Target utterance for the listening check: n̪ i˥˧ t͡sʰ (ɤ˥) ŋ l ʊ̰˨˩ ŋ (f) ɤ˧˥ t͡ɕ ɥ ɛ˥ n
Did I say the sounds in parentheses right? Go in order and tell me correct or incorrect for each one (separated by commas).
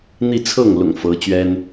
incorrect, correct